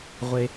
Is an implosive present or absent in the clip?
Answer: absent